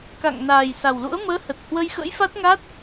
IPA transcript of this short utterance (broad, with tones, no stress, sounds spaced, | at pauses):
k a̰˧˨ ŋ n aː˨˩ j s a˨˩ w l ṵ˧˥ ə̯ m əː˨˦ h ə˨˩ t̚ h w ə˧ j x ə̰˧˥ j f a˦˥ t̚ ŋ a˦˥ t̚